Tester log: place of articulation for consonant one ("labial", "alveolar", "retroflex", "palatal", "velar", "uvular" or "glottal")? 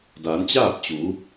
alveolar